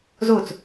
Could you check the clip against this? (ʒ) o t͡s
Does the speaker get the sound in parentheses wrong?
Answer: yes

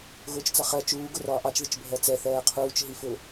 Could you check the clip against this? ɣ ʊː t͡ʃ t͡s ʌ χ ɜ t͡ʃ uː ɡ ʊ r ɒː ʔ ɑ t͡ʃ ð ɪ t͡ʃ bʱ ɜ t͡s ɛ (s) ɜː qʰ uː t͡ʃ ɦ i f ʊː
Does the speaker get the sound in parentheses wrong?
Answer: yes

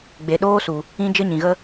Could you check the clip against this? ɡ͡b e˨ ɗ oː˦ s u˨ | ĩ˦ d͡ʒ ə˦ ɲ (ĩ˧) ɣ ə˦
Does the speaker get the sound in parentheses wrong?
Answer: yes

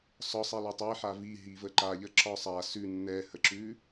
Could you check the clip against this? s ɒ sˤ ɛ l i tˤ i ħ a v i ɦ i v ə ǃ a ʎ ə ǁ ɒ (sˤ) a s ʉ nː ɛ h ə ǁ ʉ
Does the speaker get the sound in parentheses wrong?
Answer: no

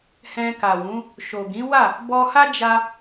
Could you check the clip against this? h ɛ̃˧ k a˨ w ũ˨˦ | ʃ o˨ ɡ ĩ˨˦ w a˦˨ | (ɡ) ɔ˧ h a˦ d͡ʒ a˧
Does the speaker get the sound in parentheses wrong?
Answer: yes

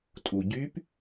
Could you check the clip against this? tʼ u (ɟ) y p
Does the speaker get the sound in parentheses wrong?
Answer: no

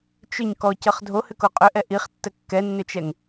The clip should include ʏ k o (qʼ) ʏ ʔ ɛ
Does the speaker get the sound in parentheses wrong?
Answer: no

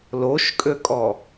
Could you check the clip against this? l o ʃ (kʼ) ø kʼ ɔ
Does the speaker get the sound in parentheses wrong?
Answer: no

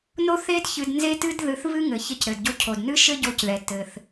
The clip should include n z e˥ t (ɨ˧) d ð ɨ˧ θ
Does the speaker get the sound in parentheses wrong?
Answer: yes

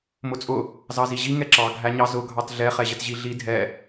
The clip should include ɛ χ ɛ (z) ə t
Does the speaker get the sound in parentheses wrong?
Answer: yes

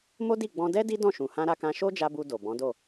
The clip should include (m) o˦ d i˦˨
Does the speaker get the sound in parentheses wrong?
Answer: no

